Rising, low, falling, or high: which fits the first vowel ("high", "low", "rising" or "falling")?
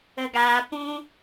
low